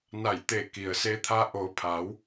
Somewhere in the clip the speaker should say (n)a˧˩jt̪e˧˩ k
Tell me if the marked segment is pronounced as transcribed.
yes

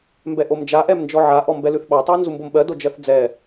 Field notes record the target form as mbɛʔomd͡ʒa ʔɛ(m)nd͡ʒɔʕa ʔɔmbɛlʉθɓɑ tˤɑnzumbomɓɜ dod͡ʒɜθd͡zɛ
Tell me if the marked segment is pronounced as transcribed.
yes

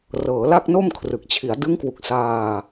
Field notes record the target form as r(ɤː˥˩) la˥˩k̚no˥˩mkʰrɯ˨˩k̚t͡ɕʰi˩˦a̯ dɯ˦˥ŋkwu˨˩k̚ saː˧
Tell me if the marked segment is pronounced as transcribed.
no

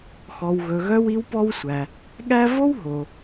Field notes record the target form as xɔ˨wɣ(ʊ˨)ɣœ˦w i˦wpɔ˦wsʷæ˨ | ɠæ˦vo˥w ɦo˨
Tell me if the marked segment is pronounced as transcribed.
no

